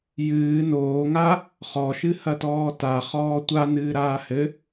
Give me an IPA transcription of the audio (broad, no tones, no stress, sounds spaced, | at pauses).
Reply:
j ɨː n oː ŋ a | χ ɔ ʃ ɨ h ɐ t ɔː t a χ ɔː tʷ a n ɨː ɾ aː h ɘ